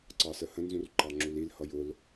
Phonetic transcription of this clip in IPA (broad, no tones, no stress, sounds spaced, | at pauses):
ǀ ɑ s ə h ə̃ n z ũ r ǃ ɑ ŋ͡ǁ u l i l h ʌ j ʊ l